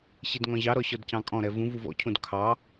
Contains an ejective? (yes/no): yes